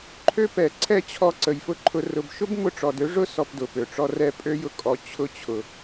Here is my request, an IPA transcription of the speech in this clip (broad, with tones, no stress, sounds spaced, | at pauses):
ǃʰ ø˦ p ɛ˨ ǀʰ ɛ˦ t͡ɕʰ ɔ˧ ǀ ə˨ j f ʊ˦ ǃʰ ʊ˧ r ʊ˨ b ʃ ʊ˦ b m ʊ˧ ʈ͡ʂ ɔ˨ d ø˦ ʐ ʊ˦ s ɔ˧ p d ʊ˨ p ø˨ ʈ͡ʂ ɔ˦ r ɛ˧ pʼ ø˦ j ʊ˧ kʼ ɔ˨ t͡ɕʰ ʊ˧ t͡ɕʰ ʊ˨